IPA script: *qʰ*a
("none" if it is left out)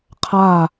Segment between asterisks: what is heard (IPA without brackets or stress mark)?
qʰ